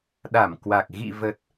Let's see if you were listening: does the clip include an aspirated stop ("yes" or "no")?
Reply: no